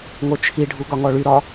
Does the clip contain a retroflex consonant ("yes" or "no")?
yes